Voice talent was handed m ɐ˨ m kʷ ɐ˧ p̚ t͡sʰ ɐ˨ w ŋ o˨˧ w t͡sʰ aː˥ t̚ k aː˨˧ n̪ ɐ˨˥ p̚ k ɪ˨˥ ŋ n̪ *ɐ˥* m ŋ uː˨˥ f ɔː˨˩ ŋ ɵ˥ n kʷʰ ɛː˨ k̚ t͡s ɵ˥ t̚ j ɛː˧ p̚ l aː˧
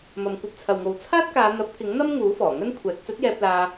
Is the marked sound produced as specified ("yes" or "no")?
yes